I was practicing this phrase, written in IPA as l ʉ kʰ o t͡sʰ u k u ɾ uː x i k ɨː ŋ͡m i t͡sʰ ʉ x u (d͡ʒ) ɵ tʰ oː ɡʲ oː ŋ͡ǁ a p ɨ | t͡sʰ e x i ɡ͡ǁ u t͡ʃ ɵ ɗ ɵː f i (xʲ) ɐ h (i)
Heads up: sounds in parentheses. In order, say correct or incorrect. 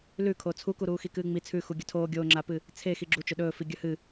incorrect: ɡʲ, incorrect: ɡʲ, incorrect: ɨ

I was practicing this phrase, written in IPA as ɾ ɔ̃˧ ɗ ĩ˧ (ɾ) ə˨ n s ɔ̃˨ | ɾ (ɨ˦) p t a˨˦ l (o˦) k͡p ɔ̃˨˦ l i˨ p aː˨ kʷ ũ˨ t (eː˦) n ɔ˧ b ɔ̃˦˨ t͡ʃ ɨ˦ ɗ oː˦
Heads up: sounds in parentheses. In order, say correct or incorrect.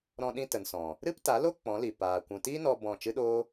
incorrect: t, correct, correct, incorrect: iː˦

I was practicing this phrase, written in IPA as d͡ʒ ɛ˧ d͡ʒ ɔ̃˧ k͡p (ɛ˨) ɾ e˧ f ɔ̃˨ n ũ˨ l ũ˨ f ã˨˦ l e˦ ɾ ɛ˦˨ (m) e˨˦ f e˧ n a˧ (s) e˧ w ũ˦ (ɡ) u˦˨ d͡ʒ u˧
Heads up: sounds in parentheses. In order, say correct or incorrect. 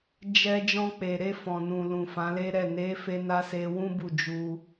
incorrect: e˨, incorrect: n, correct, incorrect: b

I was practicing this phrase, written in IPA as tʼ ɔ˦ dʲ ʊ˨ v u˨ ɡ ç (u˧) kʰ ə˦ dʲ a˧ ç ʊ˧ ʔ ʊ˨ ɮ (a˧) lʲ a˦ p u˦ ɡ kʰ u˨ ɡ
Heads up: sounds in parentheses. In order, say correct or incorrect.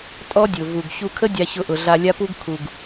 correct, correct

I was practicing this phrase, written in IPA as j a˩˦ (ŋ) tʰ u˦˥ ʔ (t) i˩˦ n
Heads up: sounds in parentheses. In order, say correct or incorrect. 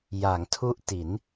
correct, correct

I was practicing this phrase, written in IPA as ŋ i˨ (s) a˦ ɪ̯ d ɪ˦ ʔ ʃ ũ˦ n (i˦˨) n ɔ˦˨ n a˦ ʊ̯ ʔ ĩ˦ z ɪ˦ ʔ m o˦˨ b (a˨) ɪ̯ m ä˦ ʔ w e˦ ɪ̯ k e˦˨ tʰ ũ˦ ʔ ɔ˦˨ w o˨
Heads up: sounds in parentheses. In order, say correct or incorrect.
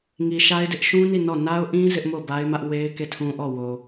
incorrect: ʃ, correct, incorrect: a˦

